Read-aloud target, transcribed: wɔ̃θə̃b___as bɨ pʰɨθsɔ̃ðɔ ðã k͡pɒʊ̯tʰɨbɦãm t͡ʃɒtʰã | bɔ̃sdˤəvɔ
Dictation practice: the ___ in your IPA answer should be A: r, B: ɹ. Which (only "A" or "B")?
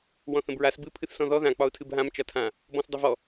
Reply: B